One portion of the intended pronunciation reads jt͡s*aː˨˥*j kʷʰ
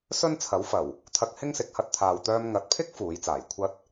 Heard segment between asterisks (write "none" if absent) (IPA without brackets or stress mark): aː˨˩